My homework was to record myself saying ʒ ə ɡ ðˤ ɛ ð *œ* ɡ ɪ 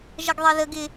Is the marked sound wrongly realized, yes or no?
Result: yes